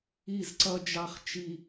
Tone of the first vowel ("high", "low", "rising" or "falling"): falling